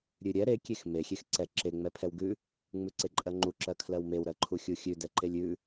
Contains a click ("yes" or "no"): yes